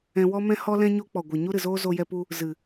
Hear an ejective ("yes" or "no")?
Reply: no